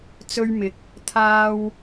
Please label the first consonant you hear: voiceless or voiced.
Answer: voiceless